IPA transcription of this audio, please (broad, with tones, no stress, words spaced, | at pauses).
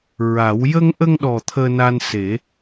ɹa˨˩˦w jə˧ŋʔə˧ŋɗɔ˨˩ t̪ʰəː˧na˧nse˨˩˦